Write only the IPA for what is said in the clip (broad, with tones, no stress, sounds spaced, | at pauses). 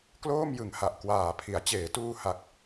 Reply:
k l oː˥˩ m j ɯ˨˩ ŋ h a˨˩ ʔ k w aː˨˩ pʰ i˩˦ a̯ t͡ɕ eː˩˦ t uː˧ h a˨˩ k̚